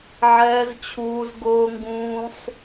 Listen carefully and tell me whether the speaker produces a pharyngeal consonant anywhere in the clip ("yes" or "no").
yes